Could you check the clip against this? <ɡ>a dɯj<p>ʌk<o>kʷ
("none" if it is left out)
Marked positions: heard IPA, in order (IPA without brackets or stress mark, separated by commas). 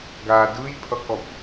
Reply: ɡ, pʰ, ɔ